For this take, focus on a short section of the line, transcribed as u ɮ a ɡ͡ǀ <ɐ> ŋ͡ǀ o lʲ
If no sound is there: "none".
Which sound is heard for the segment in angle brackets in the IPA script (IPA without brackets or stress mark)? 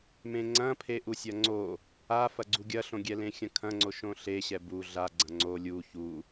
ɐ̃